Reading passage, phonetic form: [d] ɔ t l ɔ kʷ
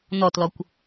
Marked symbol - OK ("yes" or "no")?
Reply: no